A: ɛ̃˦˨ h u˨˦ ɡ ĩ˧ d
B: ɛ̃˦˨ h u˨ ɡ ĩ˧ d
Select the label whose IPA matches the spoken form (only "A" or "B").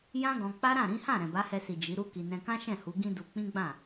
A